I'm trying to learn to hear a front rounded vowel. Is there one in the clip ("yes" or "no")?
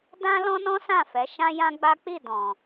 no